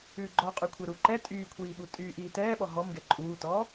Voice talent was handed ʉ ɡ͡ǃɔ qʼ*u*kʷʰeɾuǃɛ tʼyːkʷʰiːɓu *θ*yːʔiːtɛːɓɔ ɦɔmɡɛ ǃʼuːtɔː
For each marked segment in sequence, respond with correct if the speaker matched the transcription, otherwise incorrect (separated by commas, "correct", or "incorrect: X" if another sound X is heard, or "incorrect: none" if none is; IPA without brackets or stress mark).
incorrect: ʉ, incorrect: tʼ